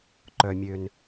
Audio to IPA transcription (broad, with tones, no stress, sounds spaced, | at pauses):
ǃ œ˩ mʲ ø˩ n